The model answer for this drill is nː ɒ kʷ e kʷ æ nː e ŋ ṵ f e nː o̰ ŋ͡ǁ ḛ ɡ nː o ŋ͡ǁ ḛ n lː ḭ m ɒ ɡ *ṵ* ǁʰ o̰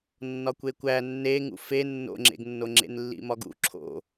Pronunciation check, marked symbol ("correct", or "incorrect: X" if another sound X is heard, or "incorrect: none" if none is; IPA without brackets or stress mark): correct